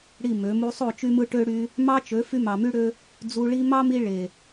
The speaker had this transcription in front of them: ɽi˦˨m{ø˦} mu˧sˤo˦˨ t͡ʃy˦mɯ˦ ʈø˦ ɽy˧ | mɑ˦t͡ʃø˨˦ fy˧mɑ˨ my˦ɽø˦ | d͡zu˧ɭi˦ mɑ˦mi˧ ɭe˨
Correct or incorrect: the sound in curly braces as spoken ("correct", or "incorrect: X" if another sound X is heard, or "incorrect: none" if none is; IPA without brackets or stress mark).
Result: incorrect: ø˨˦